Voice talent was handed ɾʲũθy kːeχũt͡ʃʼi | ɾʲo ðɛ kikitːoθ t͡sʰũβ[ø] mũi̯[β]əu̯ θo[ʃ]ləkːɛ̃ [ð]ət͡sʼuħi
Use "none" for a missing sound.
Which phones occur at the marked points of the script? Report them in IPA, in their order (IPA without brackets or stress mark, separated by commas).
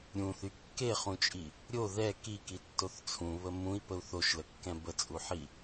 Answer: ə, p, ʃ, b